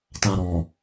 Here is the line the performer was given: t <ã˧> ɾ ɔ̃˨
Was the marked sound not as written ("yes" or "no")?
no